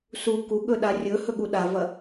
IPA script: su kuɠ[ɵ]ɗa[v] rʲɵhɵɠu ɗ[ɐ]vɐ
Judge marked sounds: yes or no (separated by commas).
yes, no, no